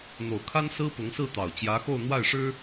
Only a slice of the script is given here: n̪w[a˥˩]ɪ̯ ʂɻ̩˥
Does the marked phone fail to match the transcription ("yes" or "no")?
no